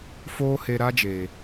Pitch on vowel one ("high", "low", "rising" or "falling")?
high